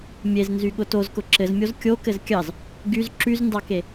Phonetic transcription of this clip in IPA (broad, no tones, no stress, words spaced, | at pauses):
mʲeznzyɠʊ tozkʊ ǁɘzmʲoz kʲokɘz kʲɑz | ɡyz ǁyzndɑke